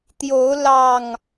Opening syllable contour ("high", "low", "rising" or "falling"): rising